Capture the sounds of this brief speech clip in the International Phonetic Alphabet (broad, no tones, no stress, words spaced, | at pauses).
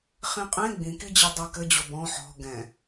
χĩqʼẽ ɡ͡bĩkid͡ʑe dˤakɘ d͡ʑobɔ̃ ħɔ̤ ɡɛ̃